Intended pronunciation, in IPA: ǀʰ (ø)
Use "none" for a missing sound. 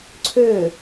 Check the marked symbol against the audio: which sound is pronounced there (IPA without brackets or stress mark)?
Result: ø